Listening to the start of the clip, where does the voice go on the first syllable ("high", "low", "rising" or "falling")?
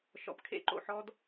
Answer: low